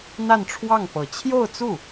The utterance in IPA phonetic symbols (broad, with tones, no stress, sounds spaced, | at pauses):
n̪ a˥˧ n ʈ͡ʂʰ w ɑ˥˩ ŋ p ɤ˨˩ t͡ɕʰ j o˥˧ ʊ̯ t͡s u˥˩